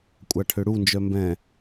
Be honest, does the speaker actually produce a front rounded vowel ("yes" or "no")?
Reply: yes